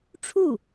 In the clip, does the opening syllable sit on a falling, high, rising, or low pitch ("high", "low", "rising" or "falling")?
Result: falling